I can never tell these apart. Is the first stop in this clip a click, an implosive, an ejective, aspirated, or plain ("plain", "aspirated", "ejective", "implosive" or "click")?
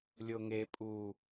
ejective